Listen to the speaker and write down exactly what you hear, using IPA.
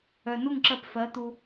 œ˨ n u˦˨ ŋ ǁ ɜ˧ p f ɜ˨˦ t̪ u˧

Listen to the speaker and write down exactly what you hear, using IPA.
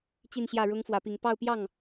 t͡ɕ i˥˧ n ɕ j ä˥˩ ɻ ʊ˥ ŋ f w ä˧˥ p i˧˥ ŋ p ɑ˥˧ ʊ̯ p j ɑ˥˩ ŋ

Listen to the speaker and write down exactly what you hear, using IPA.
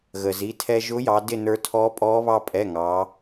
ɣ əː˩ z i˩˧˩ tʰ ɛ˧ ʒ ʊː˧˥ j ɑ˩˧ d ɪ˥˨ n ə˞˧ tʰ ɔː˧˥ pʼ ɔː˧˥ β ɑ˧ pʼ ɛ˩˧˩ ŋ ɑ˩˧

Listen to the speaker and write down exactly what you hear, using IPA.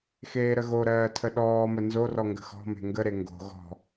x eː ɾ ə ɣ o ɾ ɜː tʰ ə ɗ ɔː m ə n z o r ɔ ŋ ɡ ə̤ x ɔ̤ m e̤ ŋ ɡ ə ɾ e ŋ ɡ o̤ ɣ ɔ̤

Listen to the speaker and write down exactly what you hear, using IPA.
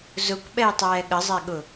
z ʊ kʷ ɓ ɛ j tˤ ɛː ɠ ə zˤ ɛ ɠ ʊ

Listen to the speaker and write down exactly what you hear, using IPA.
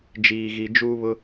d͡ʒ iː˧ ɣ i˧ d͡ʒ uː˦ β ʊ˦

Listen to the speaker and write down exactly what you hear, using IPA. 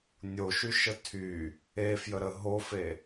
nʲ o ʃ y ʃ ə tʰ y | e f j ə ɾ ə ɦ o f e

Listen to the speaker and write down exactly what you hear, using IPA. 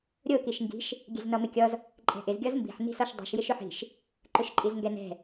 ɾʲ o k i ʃ ŋ ɡ i̤ ʃ | ɡʲ ɛ̤ z n ɔ m ɪ kʲ ɔ z | ǃʼ ɛ̤ ʔ ɪ z ɡʲ ɔ z m b i̤ ħ n i̤ s ɔ ʃ dˤ i̤ ʃ j ɪ ʃ ʊ ħ i̤ ʃ | ǃ ʊ ʃ ǃʼ i z ŋ ɡ ɛ n ɛ̤

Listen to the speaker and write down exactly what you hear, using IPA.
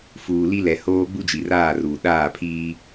f uː˨ l i˦ l ɛ˨ h oː˦ ɡ͡b u˦ d͡ʒ i˨ r aː˦˨ r uː˨ ɗ aː˦˨ pʰ iː˦

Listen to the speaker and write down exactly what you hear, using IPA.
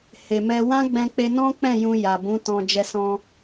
h e˨ m ɛ˧ w ã˦ ɡ͡b ɛ̃˧ k͡p e˧ n ɔ̃˦ k͡p ɛ̃˦˨ j ũ˧ j a˨ b ũ˨˦ t ɔ̃˧ d͡ʒ ɛ˧ s ɔ̃˧

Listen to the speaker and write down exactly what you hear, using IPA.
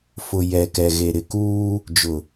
f ʊ˨ j ɛ˨ k ɛ˨ ɣ e˨ ɾ ɪ˨ k uː˦ | d͡ʒ ʊ˨

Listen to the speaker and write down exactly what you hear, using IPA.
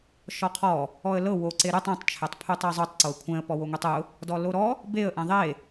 ʃ ɔ qʰ ɔ | ɔ ə̯ l ɤ w o ǀ e ɾ u tˤ õ tˤ t͡ʃʰ ɛ tˤ pʰ u tˤ ɛ zˤ u tˤ ǀ o ə̯ kʷʰ ɛ̃ ə̯ p ɔ w o ŋʷ e tˤ ʊ | d ɔ l o ɾ ɔ | b e ə̯ ʔ ɛ̃ ðˤ e

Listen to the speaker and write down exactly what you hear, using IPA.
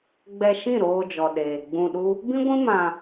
ɡ͡b ɛ˧ ʃ ĩ˦˨ ɾ oː˧ d͡ʒ ɔ˨ ɗ eː˨ ɡ͡b ũ˧ ɗ u˦ | b ĩ˦ ɡʷ ĩ˦ m ã˧

